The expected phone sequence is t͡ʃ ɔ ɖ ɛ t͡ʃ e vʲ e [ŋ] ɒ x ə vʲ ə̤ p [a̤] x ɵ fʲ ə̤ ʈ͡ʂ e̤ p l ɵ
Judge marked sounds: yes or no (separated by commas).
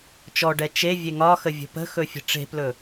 yes, no